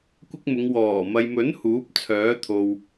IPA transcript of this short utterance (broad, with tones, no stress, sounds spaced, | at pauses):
kʷ ɪ˥ k̚ m ʊ˨˧ ŋ w ɔː˨˩ m ɐ˨ j m ɵ˨˥ n h uː˨˥ p̚ t͡sʰ œː˨˥ t̪ʰ o˨ w